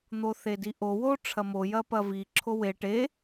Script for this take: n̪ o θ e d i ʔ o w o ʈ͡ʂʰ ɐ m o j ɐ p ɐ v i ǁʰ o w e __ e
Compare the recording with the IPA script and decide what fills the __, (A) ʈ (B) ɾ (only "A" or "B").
A